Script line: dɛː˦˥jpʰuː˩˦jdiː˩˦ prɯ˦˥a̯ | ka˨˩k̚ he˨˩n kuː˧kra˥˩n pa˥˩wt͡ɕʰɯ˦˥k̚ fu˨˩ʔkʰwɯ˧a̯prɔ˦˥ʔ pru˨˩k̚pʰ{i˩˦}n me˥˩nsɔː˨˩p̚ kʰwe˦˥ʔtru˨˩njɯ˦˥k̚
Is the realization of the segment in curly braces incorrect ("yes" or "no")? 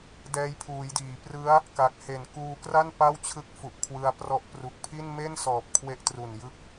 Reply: yes